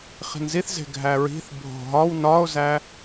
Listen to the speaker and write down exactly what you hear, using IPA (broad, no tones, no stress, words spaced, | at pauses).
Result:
χi̤nziθze̤ ɡʱæɹi̤θ bʱo̤ɦɒw nɒo̯zæ